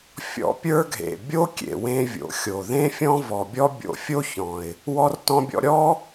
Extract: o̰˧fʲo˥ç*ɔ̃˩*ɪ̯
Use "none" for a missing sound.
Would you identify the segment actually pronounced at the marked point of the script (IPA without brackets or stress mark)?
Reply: ɔ̃˩